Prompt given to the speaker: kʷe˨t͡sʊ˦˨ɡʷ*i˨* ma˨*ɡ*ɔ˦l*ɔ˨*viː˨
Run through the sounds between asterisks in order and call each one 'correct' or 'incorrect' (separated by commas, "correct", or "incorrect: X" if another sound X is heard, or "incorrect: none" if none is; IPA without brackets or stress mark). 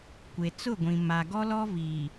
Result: incorrect: ĩ˨, correct, incorrect: ɔ˦